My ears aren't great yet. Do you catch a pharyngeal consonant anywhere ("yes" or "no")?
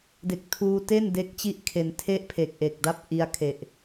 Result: no